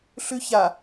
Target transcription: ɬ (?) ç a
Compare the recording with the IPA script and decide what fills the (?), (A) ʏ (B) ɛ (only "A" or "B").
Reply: A